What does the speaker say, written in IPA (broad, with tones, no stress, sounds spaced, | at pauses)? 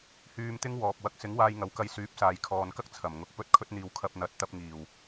h yː˧ m t̪ ɪ˥ ŋ w ɔː˨ p̚ w ɐ˨˥ k̚ s ɪ˨˥ ŋ w aː˧ j ŋ ɐ˨˧ w k ɐ˧ j s yː˨˥ p̚ s aː˨ j kʰ ɔː˨ n k ɐ˥ k̚ t͡sʰ ɐ˨˩ m ŋ ʊ˨˥ k̚ p ɵ˥ t̚ kʰ ɵ˧ t̚ n̪ iː˨ w kʰ ɐ˧ p̚ n̪ ɐ˨˥ t̚ t̪ ɐ˧ p̚ ŋ iː˨˩ w